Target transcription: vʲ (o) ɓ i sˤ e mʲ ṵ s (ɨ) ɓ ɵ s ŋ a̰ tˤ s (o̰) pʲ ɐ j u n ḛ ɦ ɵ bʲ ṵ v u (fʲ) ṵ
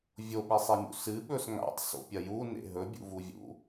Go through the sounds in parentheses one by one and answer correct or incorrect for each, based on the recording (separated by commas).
correct, correct, correct, incorrect